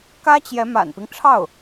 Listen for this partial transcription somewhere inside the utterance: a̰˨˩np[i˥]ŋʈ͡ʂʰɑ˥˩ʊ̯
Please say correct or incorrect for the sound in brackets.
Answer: incorrect